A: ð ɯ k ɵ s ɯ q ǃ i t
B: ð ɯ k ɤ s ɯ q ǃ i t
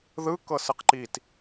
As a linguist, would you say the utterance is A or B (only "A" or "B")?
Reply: B